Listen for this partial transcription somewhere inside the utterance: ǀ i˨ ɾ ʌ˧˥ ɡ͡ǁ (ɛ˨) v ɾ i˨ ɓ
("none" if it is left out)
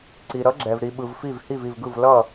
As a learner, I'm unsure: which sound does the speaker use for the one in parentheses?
ɛ˨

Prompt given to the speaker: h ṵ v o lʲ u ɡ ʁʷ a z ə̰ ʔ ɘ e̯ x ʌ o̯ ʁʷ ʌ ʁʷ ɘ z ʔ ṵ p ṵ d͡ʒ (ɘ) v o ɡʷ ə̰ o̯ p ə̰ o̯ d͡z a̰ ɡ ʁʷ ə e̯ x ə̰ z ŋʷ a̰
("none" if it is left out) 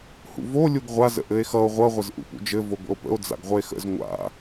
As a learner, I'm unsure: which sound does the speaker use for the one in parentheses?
ɘ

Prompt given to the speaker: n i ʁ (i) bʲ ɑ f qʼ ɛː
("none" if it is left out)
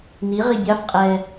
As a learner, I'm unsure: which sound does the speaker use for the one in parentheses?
i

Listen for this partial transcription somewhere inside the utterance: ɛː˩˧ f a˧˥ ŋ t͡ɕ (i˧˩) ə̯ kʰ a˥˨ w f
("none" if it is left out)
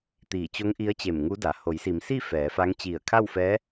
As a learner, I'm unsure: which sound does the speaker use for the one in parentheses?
i˧˩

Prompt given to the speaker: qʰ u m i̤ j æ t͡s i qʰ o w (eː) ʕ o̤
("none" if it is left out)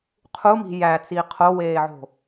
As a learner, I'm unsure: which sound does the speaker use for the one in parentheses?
eː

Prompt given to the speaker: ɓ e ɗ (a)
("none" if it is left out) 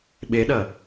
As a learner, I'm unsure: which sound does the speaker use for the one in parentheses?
ɐ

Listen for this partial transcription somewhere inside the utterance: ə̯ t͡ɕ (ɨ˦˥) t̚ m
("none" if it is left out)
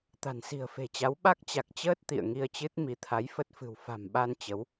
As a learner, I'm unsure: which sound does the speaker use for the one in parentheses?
ɨ˦˥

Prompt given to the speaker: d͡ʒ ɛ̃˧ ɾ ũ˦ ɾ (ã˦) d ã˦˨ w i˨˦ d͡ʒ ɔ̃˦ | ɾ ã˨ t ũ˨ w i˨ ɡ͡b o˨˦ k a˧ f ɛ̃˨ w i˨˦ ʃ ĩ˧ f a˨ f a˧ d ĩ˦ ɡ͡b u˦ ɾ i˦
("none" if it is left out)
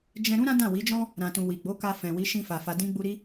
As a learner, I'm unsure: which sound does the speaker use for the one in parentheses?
ã˦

